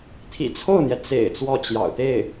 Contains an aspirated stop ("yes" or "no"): yes